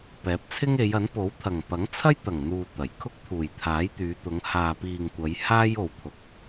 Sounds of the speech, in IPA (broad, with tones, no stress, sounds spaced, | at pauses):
p ɛː˨˥ p̚ t͡sʰ ɪ˥ ŋ e˨˧ j ɐ˨˥ n p o˨˥ w t̪ʰ ɐ˨˩ ŋ p ɐ˨˥ ŋ t͡sʰ ɐ˥ j t̪ ɐ˨˩ ŋ n̪ uː˨ t̪ ɐ˨˩ j kʰ ʊ˥ k̚ t̪ʰ uː˨˩ j t̪ʰ aː˨˥ j t̪ yː˨˧ t̪ ʊ˨˧ ŋ h aː˨ p iː˨ ŋ kʷ ɐ˨˧ j h aː˥ j o˨ w t̪ʰ ʊ˨ k̚